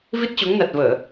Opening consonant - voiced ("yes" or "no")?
yes